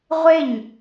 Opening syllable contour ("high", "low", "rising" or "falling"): falling